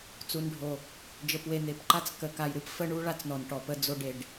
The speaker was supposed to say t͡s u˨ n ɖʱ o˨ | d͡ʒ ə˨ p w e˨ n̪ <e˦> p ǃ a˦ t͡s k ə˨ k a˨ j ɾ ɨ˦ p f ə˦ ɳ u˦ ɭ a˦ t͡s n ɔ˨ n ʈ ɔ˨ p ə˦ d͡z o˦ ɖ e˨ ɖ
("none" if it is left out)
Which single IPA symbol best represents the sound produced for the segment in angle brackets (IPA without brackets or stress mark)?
e˨˦